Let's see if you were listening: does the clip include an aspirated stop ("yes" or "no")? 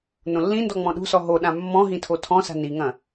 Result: yes